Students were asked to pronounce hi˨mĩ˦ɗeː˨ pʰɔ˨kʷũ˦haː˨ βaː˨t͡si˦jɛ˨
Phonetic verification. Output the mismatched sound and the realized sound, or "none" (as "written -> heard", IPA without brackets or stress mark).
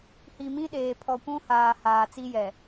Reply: β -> h